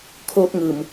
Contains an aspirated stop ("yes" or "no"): yes